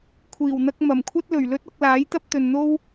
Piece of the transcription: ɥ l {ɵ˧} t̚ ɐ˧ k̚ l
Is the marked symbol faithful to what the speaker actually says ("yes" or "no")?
no